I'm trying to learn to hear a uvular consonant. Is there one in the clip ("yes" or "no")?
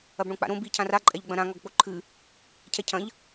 no